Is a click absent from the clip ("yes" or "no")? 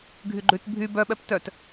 no